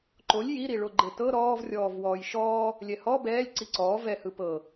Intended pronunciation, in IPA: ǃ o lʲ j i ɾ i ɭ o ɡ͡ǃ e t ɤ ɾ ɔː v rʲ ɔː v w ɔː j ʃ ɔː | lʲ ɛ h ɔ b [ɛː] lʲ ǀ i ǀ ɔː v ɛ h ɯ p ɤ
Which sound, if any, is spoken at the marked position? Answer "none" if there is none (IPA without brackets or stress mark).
ɛː